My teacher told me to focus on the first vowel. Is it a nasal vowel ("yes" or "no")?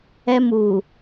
no